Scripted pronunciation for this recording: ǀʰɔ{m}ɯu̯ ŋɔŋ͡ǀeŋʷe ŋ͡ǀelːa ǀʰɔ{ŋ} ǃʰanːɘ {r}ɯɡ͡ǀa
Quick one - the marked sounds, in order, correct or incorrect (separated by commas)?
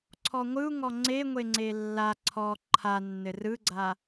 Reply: incorrect, incorrect, correct